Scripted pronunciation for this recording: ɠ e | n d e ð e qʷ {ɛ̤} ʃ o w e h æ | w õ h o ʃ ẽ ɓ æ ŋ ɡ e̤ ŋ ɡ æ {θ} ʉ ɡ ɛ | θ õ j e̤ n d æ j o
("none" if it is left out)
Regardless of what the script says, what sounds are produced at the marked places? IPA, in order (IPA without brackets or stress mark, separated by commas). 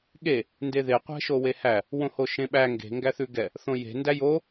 ɛ̤, θ